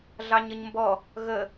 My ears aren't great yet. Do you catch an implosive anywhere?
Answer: no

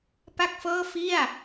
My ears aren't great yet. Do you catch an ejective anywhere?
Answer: no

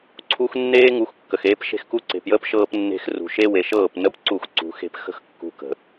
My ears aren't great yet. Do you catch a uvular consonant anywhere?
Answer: no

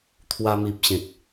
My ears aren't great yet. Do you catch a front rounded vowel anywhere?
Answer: no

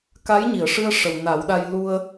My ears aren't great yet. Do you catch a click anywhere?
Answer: no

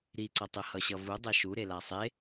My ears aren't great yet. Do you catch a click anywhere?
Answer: yes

